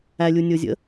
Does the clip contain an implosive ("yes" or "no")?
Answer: no